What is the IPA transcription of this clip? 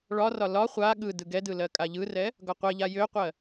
ɭ ɒ r ɒ l ɒ χʷ a ɠ ɯ d ɯ ɡ ɛ d ɯ l ɜ kʼ a ʎ ɯ r ɛ | ɡ ɒ qʷ ɛ ʎ a j ø qʷ ɜ

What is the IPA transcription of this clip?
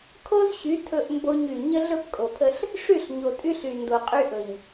kʰ o˦ z ɕ y˨˦ tʰ ɵ˦ ʔ m b o˦ ɲ y˨ ɲ ə˦ ɮ ɵ˦ p kʼ o˨ pʰ ə˦ ɬ | ʂ y˦˨ ɬ ɲ o˨ tʼ y˦ ɬ y˨ n d o˨ qʼ y˦ ʔ ɵ˨ ɲ

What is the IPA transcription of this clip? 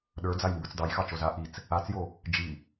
ɗ ə˞ d͡z a j m b ə˞ t͡s d ɑ j x ɑ t͡ʃ o z a ʔ i t͡s | a t͡s j o | d͡ʒ i

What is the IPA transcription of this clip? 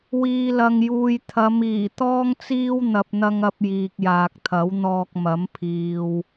w iː˨ l ɐ˨ ŋ j uː˨ j t̪ʰ ɐ˨˧ m iː˨˩ t̪ ɔː˥ ŋ t͡s iː˥ w n̪ ɐ˨ p̚ n̪ ɐ˧ ŋ ɐ˧ p̚ j iː˨ k̚ j aː˨ k̚ t̪ʰ ɐ˨˥ w n̪ ɔː˧ k̚ m ɐ˨˥ m pʰ iː˨ w

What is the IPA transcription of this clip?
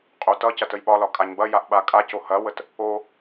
qʼ o t ʌ c ɐ t ə j ɓ ɒ l ɒ kʼ a ɲ b ɐ j a ʔ ɓ a kʼ a c o h ɐ w ə t | o

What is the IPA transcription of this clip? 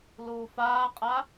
l uː f aː qʼ a

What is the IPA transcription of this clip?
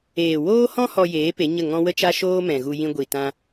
eː˨ w oː˦ h ɔ̃˦ h ɔ˧ j eː˨˦ p e˨˦ ɲ ə˦˨ ŋ ɔ̃˦ w ə˦ t͡ʃ a˦ ʃ oː˦ m ɛ̃˨ ɣ u˧ j ĩ˧ ɡʷ i˨ t ã˧

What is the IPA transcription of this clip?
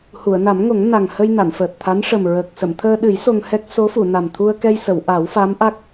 h u˨˩˨ ə̯ n a˨˩˦ m ŋ o˨˩˦ ŋ n a˨˩ ŋ h ə˧ j n a˨˩˨ n f əː˨˩ t̚ t̪ʰ a˧˥ n ʂ ə˨˩ m ɹ əː˨˩ k̚ s ə˨˩˨ m t̪ʰ əː˧ ɗ ɨ˨˩˦ j s o˧ ŋ h ɛ˦˥ k̚ s o˧˥ f u˨˩˨ n a˨˩ m t̪ʰ u˧ ə̯ k ɛ˧ j s ə˨˩˨ w ʔ a˨˩˦ w f a˧˥ m ʔ a˦˥ k̚

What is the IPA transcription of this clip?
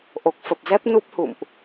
ʔ o˨˩ k̚ f ə˨˩ p̚ z ɛ˦˥ p̚ n u˦˥ p̚ h ṵ˧˨ m ʔ

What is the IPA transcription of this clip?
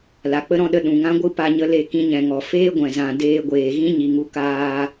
l a˨ k͡p ə˦ ɾ ɔ̃˦ ɗ ə˧ ɗ ũ˨ ŋ ã˦ ɡʷ ɨ˦ p a˧ ɲ ə˧ l e˧ k ĩ˧ ɲ ɛ̃˨ ŋ ɔ˨ f eː˦ ɡʷ ɛ̃˨ z ã˨ d eː˧ ɡʷ eː˨ ɣ ĩ˦ ɲ i˨ ŋ u˧ k aː˧

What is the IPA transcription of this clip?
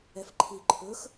ɛ f ǃʰ i ǃʰ ɵ x

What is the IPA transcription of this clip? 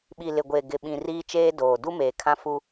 ɓ i˨ l ɪ˨ ɡʷ e˨ ɡ ɪ˨ ɓ ĩ˨ r iː˦ t͡ʃ eː˦ d oː˨ d u˦ m eː˨ kʰ ã˦ f u˦

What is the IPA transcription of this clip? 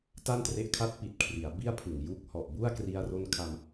t a˥˩ n t r e˦˥ ʔ kʰ a˦˥ t̚ p i˨˩ t̚ kʰ r i˩˦ a̯ b i˥˩ a̯ pʰ ɯ˨˩ ŋ j uː˦˥ k̚ h ɔ˨˩ ʔ b u˥˩ a̯ k r i˧ a̯ r o˧ n kʰ a˧ m

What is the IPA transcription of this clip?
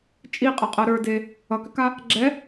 t͡ʃʼ i qʼ ʌ qʼ ɤ ɾ ə˞ d e | ʌ k ʏ k a | ɡ͡ǁ ɛ

